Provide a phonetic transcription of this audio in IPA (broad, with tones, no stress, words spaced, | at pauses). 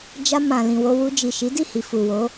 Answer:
d͡ʒa˧ mã˨lĩ˨wo˧ wu˧d͡ʒi˨ʃi˨˦ di˦˨hi˨fu˨wo˨˦